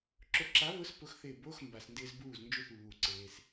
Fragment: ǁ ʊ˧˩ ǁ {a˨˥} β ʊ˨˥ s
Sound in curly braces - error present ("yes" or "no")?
no